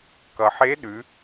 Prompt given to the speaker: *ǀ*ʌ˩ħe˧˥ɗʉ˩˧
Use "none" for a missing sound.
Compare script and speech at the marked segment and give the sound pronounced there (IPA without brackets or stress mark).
k